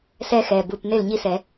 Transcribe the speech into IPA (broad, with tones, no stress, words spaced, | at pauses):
sɛ˦˥xɛ˩˧˩ bu˩˧˩p ne˥˩lɲi˥˩sɛ˧˩˧